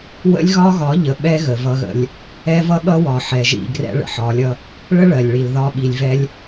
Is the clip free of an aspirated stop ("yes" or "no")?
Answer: yes